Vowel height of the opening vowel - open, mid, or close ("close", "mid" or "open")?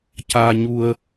open